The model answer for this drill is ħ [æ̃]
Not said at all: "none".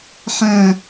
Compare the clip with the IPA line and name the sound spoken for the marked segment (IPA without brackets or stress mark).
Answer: æ̃